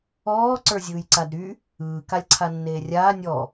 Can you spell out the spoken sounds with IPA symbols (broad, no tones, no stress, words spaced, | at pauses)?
ɔː ǀə˞zʲɯːjǀadɾy | ɯː kalʲǀʰanːeːrʲaː nʲɔ